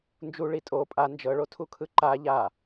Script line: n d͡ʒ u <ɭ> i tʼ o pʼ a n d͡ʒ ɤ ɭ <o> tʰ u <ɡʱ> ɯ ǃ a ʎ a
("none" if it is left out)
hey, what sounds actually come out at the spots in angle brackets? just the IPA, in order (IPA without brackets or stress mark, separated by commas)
ɭ, o, kʰ